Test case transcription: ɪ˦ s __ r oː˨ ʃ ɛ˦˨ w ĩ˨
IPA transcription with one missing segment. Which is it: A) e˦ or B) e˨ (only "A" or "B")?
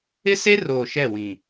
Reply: A